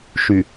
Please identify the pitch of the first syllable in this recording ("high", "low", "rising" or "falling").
low